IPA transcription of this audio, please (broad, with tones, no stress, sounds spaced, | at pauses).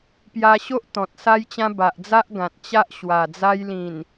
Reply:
p j a˧ ɕ o˦ ʔ t̪ ɔ̃˨ t̚ s a˦ j t͡ɕ ã˦ b a˨ ʔ d͡z a˦ ʔ ɡ ã˨ t̚ t͡ɕ a˦ ʔ ɕ w a˨˩ d͡z a˦ j l ĩ˨˩ n